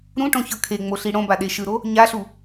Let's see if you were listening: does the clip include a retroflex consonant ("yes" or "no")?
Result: yes